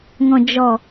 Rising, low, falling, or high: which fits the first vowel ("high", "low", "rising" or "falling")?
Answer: low